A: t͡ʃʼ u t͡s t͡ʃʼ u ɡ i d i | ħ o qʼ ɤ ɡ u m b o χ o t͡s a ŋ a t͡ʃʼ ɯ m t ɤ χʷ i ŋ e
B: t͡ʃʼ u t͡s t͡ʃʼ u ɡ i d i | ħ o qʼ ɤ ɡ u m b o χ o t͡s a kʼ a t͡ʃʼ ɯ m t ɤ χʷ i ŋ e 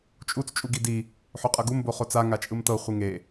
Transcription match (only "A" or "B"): A